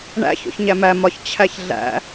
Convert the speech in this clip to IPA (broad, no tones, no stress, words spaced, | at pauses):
ɳæ̰ ço̰çɲæmæ mɒç t͡ɕʰæçɮæ̰